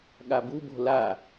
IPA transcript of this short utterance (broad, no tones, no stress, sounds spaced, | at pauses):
ɠ a b u b o̤ l a